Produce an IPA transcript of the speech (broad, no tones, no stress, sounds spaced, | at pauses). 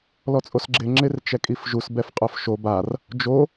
l ɔ t͡sʼ o s ɡ͡ǁ ɪ ŋ͡ǁ ɪ r t͡ʃ ɛ kʼ i f ʒ u s b ɛ f qʼ ʊ f ʃ o b a r | d͡ʒ o